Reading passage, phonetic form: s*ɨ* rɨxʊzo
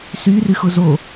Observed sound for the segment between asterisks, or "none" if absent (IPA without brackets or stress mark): y